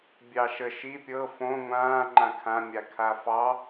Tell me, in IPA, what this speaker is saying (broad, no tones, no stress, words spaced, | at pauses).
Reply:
bʲɑʃə ʃi pʲɤ fõ ŋʷãː ŋ͡ǃãkʰã mʲakʰafɑ